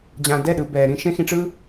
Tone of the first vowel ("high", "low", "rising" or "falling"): low